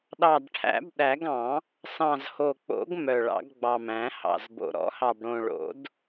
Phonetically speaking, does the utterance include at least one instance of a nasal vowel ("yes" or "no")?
yes